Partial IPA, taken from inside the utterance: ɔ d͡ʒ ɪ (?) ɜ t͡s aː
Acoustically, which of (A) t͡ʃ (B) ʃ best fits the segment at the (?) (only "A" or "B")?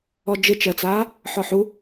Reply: A